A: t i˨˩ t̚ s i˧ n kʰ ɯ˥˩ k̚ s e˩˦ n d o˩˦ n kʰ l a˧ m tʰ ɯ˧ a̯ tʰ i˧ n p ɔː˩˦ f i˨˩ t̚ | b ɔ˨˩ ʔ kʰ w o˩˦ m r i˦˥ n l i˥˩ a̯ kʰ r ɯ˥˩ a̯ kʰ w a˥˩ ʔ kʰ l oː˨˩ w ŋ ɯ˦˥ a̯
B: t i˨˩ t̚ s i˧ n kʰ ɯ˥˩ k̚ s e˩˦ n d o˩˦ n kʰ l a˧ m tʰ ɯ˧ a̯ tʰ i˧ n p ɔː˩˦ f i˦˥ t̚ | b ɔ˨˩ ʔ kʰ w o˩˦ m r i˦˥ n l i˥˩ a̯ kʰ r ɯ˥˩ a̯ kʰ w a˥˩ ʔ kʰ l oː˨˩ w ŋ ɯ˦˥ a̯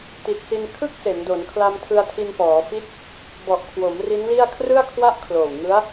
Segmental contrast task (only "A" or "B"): B